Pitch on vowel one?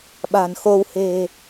low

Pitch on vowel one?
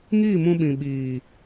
falling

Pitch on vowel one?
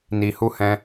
low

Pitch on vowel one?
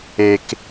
low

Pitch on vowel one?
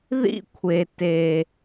high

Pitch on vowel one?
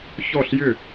falling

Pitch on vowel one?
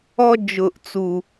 high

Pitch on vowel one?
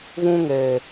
high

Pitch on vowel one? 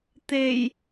low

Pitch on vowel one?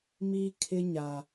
high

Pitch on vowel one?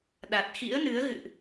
low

